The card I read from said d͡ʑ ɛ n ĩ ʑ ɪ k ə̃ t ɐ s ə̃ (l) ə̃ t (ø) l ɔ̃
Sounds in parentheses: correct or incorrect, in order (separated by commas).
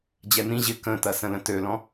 correct, correct